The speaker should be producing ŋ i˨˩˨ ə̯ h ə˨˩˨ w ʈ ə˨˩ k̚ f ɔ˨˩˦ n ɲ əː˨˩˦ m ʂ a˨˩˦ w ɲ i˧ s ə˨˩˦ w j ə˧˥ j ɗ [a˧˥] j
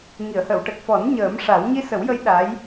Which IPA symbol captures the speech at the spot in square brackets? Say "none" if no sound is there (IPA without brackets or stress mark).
a˧˥